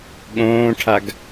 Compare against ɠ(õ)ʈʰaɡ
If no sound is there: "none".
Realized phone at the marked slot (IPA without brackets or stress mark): õː